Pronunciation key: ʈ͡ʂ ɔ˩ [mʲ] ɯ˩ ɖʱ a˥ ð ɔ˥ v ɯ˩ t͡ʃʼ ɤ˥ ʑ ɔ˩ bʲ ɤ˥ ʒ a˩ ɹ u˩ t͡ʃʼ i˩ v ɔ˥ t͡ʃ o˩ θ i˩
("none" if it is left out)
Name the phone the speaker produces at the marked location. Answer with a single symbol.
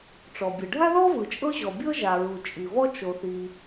bʲ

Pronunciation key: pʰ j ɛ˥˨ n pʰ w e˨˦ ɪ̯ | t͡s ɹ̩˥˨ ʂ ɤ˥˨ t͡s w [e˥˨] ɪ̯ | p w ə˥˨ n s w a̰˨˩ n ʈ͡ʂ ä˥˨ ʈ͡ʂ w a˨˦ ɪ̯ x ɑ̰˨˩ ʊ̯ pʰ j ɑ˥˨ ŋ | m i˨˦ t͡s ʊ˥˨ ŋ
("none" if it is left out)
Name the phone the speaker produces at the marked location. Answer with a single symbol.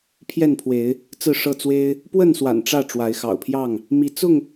e˦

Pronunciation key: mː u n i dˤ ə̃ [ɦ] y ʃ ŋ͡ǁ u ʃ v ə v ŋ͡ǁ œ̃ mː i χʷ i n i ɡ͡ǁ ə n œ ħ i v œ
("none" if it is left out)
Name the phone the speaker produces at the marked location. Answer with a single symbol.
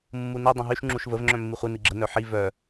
ɦ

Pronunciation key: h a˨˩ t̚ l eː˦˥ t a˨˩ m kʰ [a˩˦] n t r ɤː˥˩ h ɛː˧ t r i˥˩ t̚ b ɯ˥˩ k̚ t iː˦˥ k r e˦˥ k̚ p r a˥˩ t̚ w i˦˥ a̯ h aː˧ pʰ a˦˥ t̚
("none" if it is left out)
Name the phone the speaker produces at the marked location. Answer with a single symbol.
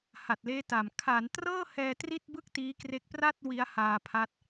a˩˦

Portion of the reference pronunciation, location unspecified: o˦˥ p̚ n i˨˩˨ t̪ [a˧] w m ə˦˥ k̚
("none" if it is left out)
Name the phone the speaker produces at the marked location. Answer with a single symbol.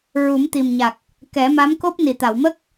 a˨˩˨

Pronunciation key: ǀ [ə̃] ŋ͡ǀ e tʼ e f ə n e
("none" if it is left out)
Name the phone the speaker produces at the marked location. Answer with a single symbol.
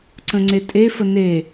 ə̃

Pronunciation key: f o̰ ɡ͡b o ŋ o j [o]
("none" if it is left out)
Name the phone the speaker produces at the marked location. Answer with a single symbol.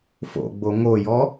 ɔ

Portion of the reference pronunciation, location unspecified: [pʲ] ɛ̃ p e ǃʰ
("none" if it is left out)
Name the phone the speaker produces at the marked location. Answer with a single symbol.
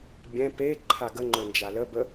bʲ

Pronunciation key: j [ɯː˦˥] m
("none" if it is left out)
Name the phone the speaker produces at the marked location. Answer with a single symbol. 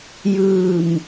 ɯː˧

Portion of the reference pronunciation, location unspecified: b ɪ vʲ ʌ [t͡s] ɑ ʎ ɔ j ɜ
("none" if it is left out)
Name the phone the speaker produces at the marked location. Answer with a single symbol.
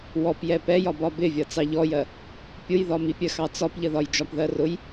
t͡s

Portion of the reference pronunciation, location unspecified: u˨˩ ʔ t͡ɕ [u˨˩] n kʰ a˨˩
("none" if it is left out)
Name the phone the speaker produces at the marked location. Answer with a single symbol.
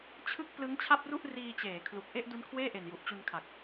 u˧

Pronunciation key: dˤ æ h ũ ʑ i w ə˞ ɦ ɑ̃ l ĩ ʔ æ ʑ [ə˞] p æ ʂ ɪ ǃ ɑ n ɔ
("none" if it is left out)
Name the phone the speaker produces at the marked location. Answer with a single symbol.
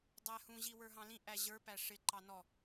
ə˞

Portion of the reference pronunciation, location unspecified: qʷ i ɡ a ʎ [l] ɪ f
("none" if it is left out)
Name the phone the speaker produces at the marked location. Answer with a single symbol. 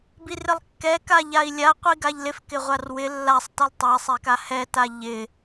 l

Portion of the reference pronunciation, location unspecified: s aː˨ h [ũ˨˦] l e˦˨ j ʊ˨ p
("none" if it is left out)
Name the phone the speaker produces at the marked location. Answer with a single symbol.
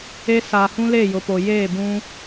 ũ˦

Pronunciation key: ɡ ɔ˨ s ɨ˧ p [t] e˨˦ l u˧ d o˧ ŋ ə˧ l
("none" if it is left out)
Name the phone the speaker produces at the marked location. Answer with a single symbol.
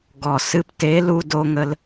t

